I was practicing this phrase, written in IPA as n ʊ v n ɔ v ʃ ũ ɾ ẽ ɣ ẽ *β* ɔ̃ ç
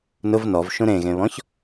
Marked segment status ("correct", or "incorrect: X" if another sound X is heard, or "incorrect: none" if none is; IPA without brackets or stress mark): correct